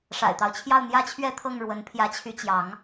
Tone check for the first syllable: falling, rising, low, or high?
low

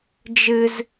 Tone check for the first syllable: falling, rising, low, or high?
high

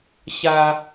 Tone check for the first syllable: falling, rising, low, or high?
low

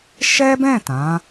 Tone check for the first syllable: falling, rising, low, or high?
high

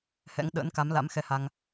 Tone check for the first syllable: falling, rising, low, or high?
rising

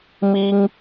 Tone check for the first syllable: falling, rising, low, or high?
high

